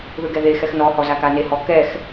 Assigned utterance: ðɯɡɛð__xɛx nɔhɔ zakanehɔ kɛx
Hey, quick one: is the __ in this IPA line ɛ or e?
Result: e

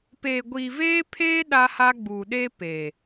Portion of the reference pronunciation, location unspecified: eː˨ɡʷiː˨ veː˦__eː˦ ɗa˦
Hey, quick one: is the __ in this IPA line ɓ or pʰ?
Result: pʰ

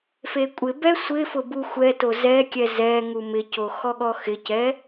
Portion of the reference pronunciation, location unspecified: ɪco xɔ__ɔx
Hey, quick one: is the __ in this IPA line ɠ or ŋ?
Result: ɠ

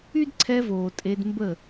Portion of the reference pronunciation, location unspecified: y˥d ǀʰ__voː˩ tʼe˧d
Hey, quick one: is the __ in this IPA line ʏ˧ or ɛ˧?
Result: ɛ˧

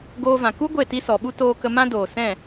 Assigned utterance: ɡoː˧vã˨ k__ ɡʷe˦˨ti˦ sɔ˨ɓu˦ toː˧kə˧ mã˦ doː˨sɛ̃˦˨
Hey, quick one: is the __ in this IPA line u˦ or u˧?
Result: u˦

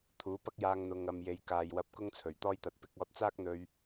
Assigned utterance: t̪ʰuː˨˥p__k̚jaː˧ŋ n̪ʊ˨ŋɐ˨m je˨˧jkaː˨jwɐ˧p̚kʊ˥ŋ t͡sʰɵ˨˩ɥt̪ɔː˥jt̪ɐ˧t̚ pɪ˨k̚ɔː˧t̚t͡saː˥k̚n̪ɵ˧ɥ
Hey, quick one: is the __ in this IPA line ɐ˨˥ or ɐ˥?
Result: ɐ˥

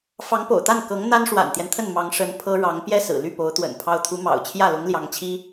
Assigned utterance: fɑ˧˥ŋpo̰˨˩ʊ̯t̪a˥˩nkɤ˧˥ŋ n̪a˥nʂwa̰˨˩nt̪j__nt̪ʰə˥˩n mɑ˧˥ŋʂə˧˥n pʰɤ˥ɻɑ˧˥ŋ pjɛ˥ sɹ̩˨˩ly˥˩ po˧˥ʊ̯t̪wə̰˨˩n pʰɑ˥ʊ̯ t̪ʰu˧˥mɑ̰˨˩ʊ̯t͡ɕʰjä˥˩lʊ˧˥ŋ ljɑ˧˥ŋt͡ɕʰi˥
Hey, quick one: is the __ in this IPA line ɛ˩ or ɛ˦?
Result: ɛ˦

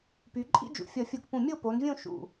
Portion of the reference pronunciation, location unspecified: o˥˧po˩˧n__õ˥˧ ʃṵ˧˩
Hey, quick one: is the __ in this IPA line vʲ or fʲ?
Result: vʲ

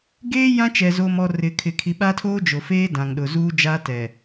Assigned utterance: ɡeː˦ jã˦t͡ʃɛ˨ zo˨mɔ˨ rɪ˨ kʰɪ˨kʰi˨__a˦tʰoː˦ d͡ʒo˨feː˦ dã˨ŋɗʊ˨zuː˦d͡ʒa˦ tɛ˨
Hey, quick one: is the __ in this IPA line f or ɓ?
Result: ɓ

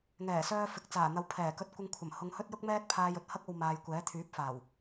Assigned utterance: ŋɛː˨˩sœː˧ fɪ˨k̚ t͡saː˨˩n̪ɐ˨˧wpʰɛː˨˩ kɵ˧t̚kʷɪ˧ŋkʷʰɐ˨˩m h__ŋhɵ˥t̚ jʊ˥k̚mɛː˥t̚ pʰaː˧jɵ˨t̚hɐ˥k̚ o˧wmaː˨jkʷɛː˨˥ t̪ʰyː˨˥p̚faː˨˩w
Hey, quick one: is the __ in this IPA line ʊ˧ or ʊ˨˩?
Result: ʊ˧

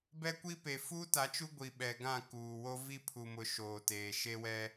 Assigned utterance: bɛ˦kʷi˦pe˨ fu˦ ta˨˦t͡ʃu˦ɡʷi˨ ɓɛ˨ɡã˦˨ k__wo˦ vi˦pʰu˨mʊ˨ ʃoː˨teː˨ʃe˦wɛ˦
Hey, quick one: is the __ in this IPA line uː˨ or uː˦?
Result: uː˨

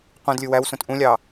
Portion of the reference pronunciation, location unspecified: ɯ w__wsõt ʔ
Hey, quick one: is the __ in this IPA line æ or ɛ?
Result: æ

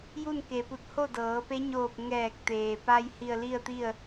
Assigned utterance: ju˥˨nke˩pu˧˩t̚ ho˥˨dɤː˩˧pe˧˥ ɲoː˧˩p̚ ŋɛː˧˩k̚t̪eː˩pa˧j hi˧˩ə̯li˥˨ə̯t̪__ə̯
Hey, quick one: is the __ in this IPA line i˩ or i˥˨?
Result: i˥˨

